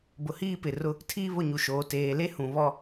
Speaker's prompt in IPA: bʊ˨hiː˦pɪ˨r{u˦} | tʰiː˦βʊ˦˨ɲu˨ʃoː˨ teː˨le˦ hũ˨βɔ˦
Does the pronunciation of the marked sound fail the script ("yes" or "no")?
yes